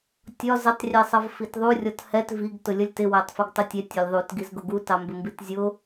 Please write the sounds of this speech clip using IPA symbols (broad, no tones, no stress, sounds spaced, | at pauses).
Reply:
tʲ ɒ z ə tˤ rʲ ɛ sˤ ʌ v f i t ðˤ u rʲ ɔ t h ɛ t v i ɡ t ʊ lʲ ʌ lʲ t ɪ w æ tˤ f ɪ ɡ tˤ ʊ tʲ ɛ tʲ ɒ lʲ ðˤ u t ɡ i z ɡ ʊ ɡ u t ɑ m b ɪ m b i t zʲ ʊ